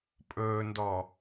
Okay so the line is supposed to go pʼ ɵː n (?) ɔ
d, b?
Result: d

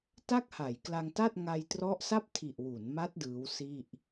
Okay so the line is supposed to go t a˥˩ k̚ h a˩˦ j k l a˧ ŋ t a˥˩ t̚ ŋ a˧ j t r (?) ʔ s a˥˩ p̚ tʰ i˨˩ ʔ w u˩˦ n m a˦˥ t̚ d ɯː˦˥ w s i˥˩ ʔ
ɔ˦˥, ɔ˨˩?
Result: ɔ˦˥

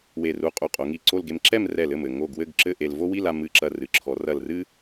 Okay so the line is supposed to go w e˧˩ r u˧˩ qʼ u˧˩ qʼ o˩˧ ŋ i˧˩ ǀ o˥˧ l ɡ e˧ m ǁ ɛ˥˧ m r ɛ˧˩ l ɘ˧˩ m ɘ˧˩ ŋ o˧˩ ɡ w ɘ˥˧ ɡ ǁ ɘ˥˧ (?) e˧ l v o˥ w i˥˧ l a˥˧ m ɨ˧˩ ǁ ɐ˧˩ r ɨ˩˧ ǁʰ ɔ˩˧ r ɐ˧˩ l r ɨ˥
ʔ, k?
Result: ʔ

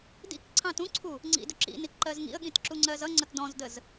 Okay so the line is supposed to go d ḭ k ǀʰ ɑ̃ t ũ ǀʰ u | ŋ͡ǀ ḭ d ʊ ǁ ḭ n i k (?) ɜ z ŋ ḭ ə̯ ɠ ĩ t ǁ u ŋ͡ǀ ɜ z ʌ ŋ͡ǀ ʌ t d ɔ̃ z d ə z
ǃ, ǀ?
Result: ǃ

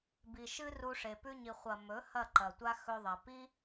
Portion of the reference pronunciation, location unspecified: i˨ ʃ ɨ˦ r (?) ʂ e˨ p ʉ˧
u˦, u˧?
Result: u˧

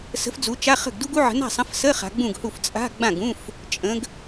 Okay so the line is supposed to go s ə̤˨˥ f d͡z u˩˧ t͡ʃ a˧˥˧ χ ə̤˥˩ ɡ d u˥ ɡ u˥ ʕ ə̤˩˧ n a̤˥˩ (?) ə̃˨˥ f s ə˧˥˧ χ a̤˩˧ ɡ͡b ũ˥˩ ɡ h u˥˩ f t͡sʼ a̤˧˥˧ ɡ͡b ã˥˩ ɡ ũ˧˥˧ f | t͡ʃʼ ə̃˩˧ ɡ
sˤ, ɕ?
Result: sˤ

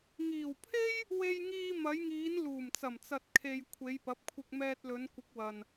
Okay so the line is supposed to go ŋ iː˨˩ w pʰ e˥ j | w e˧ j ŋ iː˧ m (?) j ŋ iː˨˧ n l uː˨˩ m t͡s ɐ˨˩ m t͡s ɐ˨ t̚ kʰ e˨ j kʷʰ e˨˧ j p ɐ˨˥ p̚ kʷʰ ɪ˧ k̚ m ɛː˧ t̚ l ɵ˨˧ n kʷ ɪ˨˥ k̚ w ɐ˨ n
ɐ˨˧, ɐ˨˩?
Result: ɐ˨˧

